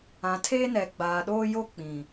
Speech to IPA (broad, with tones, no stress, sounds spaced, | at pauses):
ã˨ tʰ eː˦ n ɛ˨ ɡ͡b aː˨ ɗ oː˦ j o˦ k͡p ĩ˨